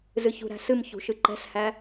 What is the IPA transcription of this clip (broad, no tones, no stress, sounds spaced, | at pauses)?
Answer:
z ɨ ç ṳ ɾ æ̤ s ɨ m ç ṳ ʃ ɨ ǃ ɛ̤ s h æ